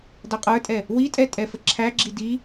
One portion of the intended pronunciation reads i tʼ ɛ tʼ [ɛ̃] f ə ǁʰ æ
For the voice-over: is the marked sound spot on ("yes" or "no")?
no